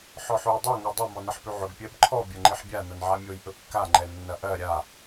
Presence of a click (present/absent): present